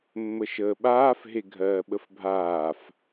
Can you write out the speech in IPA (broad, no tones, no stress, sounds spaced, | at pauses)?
mː ə ʃ əː ɓ aː f ɦ e ɡʱ ɜː ɓ ə f bʱ aː f